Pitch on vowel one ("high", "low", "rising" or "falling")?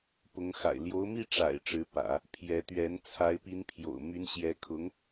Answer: rising